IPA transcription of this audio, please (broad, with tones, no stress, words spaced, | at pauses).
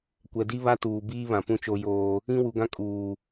kʷɛ˨di˦βa˦tuː˨ biː˦βã˨pũ˦ t͡ʃo˦joː˦ | ĩ˦wu˨ɡã˦ kʼuː˨